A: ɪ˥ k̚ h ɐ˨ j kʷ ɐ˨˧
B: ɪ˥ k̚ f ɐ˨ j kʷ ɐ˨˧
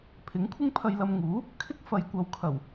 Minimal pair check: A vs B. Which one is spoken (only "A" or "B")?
B